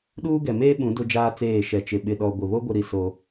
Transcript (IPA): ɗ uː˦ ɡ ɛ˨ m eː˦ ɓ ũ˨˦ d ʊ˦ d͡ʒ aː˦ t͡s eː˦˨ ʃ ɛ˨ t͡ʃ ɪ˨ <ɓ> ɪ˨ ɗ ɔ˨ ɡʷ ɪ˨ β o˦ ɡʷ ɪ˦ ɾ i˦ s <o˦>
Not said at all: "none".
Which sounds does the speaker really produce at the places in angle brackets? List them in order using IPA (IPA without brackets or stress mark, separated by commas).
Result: ɓ, o˦